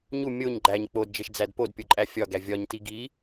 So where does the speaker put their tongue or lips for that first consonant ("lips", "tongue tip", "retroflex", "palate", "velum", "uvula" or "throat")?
palate